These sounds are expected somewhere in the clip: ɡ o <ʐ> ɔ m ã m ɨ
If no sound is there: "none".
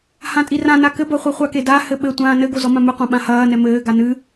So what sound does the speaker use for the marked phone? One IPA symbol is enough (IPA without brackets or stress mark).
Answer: z